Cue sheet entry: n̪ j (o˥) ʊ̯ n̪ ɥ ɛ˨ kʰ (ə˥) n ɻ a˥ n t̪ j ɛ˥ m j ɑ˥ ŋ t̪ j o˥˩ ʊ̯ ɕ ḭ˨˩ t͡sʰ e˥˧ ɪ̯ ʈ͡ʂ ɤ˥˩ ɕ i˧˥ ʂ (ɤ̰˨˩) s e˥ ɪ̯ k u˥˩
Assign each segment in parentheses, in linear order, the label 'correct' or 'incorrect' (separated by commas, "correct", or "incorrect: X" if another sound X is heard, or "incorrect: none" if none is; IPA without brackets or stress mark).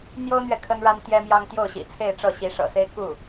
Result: correct, correct, correct